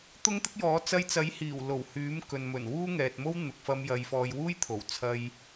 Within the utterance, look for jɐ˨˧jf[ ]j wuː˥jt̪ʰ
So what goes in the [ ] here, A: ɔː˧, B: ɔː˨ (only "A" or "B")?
A